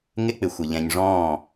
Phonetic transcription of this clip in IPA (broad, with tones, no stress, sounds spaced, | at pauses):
ŋ ɪ˦ k͡p ɪ˨ xʷ ɪ˨ ʎ ɛ̃˨ ɲ ʐ ɔ̃ː˦˨